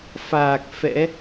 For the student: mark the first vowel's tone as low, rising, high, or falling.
low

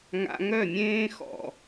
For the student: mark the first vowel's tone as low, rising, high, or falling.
high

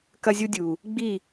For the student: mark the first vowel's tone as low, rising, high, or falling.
high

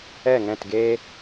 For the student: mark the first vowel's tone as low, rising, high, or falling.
falling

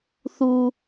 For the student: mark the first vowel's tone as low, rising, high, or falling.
low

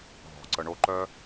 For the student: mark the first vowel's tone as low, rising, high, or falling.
low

